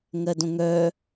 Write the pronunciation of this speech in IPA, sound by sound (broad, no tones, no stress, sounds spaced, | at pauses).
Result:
ŋ ɜ d õ ŋ œ